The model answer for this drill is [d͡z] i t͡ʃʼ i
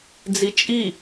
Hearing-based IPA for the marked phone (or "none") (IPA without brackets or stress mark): d͡z